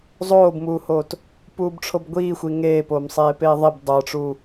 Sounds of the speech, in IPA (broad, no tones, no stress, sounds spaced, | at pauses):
zˤ oː b m uː h oː t | p uː b ʈ͡ʂʰ o b ɡʷ iː xʷ i ŋ eː p oː m sˤ eː p eː ðˤ i b dˤ ə˞ ʈ͡ʂ uː